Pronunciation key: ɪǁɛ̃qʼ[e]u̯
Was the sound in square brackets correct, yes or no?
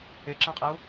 no